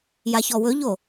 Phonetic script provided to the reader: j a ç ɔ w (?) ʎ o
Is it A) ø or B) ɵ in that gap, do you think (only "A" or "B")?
B